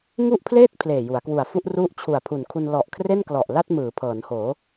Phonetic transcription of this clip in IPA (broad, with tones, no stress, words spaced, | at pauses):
ŋu˥˩ʔpʰleː˥˩t̚ pʰleː˨˩ju˩˦a̯kwu˨˩a̯fu˥˩ʔ ru˦˥ʔ t͡ɕʰu˨˩a̯pʰu˨˩nkʰu˧n lɔ˨˩ʔ kʰre˥˩nklɔ˨˩ʔla˥˩t̚ mɯː˩˦pʰɤː˩˦nhoː˩˦